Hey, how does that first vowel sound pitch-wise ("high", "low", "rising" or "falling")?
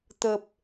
low